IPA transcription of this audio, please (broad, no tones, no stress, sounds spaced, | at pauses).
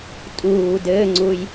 tʼ uː d ɘː ŋ͡ǀ u j